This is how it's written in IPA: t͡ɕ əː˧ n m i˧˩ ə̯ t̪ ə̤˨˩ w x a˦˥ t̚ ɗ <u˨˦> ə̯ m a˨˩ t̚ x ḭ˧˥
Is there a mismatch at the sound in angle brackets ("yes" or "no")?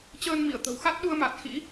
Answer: yes